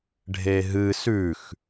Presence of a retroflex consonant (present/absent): present